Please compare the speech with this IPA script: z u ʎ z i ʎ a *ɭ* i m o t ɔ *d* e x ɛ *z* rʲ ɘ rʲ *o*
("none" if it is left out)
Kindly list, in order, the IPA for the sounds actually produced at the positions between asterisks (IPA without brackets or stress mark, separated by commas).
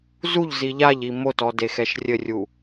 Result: ʎ, d, ʃ, u